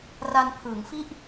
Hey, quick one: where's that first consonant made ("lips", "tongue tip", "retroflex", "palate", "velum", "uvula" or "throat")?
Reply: tongue tip